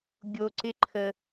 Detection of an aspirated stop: present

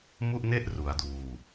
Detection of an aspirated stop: absent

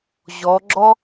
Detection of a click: present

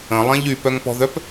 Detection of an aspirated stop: absent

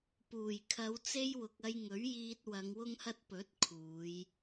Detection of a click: absent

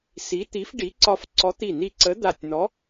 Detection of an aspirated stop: absent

